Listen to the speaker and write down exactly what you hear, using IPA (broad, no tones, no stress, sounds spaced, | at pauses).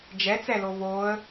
d͡ʒ ɛ t͡s ɛ l o v oː ə̯